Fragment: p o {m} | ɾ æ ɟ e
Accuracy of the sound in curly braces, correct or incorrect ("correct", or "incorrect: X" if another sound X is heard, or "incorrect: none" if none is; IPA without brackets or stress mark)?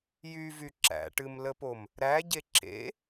correct